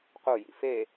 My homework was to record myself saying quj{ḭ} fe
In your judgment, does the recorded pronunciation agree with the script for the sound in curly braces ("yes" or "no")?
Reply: yes